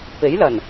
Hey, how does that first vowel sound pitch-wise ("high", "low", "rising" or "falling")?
rising